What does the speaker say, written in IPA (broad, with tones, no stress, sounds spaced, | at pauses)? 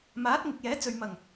m aː˨˥ t̚ ŋ ɪ˨ k̚ j ɛː˨˥ t͡s ɵ˨ ɥ m ɐ˨˩ ŋ